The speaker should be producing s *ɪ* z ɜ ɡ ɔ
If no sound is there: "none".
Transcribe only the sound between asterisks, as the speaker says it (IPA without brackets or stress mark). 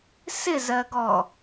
ɪ